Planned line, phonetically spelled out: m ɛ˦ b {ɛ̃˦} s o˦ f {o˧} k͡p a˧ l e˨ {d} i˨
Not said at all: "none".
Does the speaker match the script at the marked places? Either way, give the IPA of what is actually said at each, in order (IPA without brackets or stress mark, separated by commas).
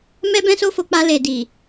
ɛ̃˦, o˧, d